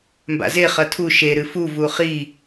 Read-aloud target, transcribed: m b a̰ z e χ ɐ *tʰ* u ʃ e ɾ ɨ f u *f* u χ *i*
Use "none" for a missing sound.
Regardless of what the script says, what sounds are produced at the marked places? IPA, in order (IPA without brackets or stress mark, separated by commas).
tʰ, v, i